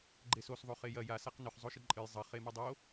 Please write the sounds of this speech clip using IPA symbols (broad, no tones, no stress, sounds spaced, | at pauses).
ɡ͡ǃ e s o s ðˤ o χ e j ɐ j a s a q n ɵ χ zˤ o ʃ ɨ ǃʼ ɨ j zˤ ɐ χ e m ɨ dˤ o